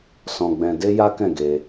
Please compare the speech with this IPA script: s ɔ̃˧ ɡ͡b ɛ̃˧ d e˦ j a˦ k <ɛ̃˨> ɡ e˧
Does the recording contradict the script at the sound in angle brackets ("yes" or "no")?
yes